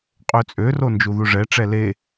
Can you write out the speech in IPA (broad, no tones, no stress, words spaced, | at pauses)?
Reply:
qʼøt͡sʼøro nd͡ʒuðuʐɛʈ͡ʂɛ le